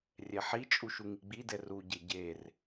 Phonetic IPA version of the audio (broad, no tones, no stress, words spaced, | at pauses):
rʲɛħit͡ʃʼu ʃuŋiɡ͡bidɛ ruɟe ɟer